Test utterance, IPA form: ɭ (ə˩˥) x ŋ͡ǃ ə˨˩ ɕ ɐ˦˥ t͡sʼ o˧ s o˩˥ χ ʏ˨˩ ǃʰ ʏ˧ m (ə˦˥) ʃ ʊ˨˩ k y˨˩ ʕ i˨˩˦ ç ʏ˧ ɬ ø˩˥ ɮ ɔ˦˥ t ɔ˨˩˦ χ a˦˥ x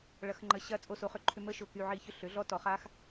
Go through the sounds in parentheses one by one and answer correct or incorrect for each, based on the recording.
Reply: incorrect: ɐ˩˥, correct

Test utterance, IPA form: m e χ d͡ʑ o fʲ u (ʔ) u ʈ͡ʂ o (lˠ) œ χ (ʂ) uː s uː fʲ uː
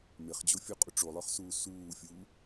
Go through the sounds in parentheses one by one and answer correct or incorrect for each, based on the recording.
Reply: incorrect: qʼ, correct, incorrect: s

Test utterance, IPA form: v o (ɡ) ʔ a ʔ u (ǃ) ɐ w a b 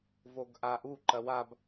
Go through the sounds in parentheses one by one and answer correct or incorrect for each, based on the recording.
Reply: correct, correct

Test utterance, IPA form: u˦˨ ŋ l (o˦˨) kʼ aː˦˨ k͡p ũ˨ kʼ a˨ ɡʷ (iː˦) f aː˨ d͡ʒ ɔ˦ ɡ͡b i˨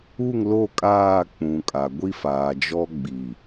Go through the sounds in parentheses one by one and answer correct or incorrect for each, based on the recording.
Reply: correct, incorrect: i˦

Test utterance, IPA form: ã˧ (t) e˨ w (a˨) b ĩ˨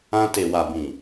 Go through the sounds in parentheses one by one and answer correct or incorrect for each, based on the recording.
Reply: correct, correct

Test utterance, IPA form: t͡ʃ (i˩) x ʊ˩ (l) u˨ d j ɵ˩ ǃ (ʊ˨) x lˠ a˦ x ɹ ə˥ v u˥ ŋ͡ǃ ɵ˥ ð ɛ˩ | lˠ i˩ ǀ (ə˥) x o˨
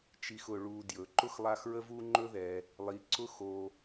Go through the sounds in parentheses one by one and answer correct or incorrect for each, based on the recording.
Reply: incorrect: i˨, incorrect: ɭ, incorrect: ʊ˥, incorrect: ʊ˥

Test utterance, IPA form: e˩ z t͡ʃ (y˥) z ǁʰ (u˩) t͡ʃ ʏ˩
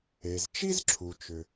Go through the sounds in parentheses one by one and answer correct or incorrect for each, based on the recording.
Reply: incorrect: i˥, correct

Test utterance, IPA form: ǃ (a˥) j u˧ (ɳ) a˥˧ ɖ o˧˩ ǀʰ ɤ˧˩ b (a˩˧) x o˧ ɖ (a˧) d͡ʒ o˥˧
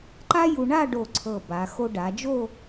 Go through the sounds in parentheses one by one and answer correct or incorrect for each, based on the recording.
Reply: correct, correct, correct, incorrect: a˩˧

